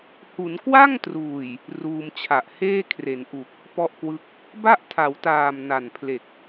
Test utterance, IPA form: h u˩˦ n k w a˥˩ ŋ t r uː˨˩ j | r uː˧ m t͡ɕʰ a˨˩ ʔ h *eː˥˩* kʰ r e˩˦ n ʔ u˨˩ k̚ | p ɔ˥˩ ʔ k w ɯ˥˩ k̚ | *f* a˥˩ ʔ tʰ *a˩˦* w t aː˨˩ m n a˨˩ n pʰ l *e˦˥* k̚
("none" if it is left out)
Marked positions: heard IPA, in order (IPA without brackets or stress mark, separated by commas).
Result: eː˥˩, b, a˩˦, e˨˩